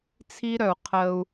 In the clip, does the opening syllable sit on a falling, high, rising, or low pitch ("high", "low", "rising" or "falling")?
high